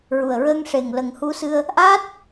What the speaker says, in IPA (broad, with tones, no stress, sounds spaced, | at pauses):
ɹ u˨˩ ə̯ ɹ əː˧ ŋ ʂ e˨˩ ŋ l ə˨˩ ŋ h u˧ s ɨ˧ ə̯ | ʔ aː˦˥ t̚